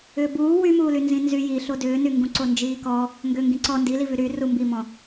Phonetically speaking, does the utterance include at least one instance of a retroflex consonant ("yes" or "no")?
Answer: no